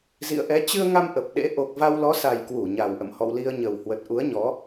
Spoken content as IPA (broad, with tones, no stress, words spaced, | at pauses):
zḭ˧˨ə̯ʔɛ˨˦ t͡ɕɨ˧ə̯ŋa˧m ʔə˨˩p̚ɗḛ˧˥ ʔo˨˩k̚ va˧wlɔ˨˦sa˨˩j kwu˧˩ɲa˨˩wʔə̰˧˨m hɔ̰˧˨wli˧ə̯ɲə˨˩whwə˨˩t̚ ʔu˨˦ə̯ɲɔ˨˦